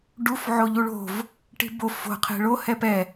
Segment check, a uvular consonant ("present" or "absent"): present